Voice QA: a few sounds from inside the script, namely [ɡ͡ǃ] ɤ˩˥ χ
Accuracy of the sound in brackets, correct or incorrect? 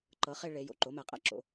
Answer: incorrect